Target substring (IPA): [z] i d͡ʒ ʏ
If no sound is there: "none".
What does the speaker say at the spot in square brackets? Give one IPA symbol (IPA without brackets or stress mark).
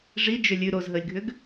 ʐ